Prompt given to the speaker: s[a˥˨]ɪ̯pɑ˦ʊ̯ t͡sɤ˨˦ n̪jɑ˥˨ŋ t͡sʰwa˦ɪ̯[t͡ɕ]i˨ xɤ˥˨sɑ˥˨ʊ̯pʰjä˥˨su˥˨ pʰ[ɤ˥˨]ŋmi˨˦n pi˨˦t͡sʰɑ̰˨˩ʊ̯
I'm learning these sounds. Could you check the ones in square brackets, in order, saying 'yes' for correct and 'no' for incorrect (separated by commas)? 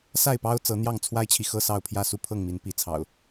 yes, no, yes